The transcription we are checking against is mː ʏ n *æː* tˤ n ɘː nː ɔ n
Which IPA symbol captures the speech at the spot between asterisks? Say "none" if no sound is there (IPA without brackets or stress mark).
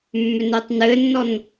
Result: əː